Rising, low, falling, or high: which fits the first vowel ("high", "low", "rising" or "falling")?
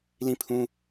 falling